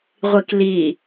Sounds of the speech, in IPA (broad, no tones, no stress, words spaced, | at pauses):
ʁʷikli